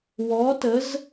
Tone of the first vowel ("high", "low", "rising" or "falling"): rising